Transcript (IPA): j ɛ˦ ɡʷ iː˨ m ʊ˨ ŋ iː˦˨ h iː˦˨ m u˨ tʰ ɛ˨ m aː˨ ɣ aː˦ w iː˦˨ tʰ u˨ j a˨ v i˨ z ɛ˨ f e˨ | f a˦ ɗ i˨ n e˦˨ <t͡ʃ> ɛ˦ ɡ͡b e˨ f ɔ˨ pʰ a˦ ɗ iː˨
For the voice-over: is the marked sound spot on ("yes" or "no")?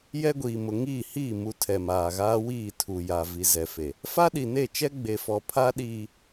yes